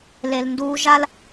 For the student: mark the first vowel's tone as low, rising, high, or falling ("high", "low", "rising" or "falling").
low